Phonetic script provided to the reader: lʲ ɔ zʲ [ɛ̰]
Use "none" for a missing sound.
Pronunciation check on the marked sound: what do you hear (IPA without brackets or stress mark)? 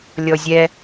ɛ